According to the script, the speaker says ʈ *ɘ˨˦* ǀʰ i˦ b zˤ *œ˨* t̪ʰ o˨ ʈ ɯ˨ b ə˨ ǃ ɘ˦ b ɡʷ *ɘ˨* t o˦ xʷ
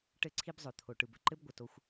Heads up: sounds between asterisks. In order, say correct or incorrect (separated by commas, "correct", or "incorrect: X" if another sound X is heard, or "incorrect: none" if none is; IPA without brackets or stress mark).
incorrect: ɘ˦˨, correct, correct